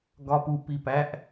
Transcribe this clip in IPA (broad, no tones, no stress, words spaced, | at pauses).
ɡɒpu pipæʔ